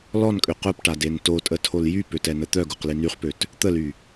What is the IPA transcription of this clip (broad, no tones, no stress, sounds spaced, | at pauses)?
l ɔ n kʼ ø q œ p ʈ a d e n t o tʼ ə tʰ o l j y p ø t ɛ n ə t̪ œ ɡ u q l i n y χ p ø t | t̪ ə l y